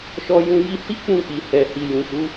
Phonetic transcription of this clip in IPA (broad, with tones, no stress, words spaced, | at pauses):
ʃɔ˧jũ˧ ji˧hi˦ k͡pũ˦˨k͡pi˨hɛ˨ hi˨jũ˨ʃu˨˦